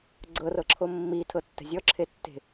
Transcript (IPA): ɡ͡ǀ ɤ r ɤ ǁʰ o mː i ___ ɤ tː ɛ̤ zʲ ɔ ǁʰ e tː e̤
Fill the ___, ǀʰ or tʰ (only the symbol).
tʰ